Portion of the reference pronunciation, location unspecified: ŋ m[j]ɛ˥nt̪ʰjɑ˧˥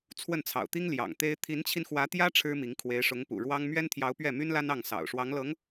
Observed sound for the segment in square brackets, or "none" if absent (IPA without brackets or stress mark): ɥ